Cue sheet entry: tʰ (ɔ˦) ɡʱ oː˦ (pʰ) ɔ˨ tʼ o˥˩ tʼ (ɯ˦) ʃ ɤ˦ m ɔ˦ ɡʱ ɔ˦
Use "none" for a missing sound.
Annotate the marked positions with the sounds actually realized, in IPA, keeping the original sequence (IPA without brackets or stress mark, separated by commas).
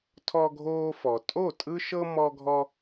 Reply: ɔ˦, f, ɯ˦